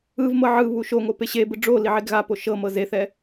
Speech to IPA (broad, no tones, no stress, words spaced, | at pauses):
ɯvmɤ ʕɯ βuʃoŋo peɕebɯ ɖ͡ʐo liʕeɡɣapo ʃɤ mɤzeθɛ